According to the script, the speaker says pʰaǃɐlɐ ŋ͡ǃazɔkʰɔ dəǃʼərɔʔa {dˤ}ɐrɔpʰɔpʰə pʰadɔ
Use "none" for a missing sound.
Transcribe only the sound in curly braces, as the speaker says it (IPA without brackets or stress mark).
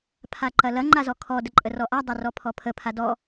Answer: dˤ